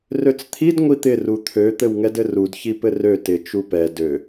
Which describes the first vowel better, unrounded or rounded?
rounded